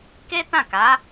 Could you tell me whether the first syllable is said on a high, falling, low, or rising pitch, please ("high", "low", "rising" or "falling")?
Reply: high